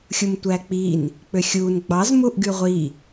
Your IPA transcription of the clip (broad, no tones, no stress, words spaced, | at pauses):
xʲumtʷæk͡pin | k͡pøxʲun ɡ͡bɑz muʔɡyʁʷi